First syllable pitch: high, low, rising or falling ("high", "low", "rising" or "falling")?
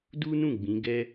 high